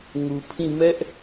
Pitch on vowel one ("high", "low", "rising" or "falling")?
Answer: low